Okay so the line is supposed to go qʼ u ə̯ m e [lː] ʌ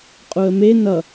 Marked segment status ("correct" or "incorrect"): incorrect